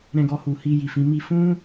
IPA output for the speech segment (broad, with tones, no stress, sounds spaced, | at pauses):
ɾ ɛ̃˧ ɡ ɔ˧ h u˨ h i˧ j i˨ f ĩ˨˦ m i˦ f ũ˦